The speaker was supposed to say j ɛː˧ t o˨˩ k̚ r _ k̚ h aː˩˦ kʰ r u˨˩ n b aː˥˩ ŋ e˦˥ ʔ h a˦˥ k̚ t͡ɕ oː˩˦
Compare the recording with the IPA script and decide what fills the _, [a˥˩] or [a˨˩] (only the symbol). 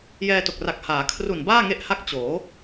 a˨˩